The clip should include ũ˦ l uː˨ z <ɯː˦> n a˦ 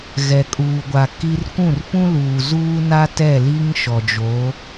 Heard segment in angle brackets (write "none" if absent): uː˦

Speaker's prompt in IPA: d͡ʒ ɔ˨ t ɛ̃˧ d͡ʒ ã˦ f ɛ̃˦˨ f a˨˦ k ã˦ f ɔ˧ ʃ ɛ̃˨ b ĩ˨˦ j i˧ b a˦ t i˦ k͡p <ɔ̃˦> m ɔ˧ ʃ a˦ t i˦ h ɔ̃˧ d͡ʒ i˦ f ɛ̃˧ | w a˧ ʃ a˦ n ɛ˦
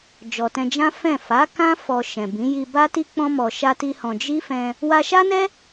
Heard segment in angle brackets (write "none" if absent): ɔ̃˦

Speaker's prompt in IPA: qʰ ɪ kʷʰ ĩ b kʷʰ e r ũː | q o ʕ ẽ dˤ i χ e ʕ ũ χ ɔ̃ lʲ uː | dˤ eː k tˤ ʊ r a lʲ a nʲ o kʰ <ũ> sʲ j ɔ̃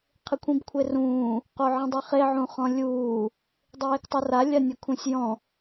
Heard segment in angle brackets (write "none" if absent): ũ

